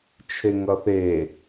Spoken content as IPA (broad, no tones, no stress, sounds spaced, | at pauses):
t͡ʃʰ e ŋ ʌ θ e